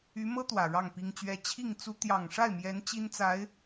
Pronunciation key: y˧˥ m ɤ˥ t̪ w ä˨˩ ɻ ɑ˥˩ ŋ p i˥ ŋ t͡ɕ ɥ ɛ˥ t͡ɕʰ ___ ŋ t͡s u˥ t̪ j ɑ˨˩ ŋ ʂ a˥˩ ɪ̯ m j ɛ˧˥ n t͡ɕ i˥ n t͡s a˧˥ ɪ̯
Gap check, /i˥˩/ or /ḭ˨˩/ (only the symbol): i˥˩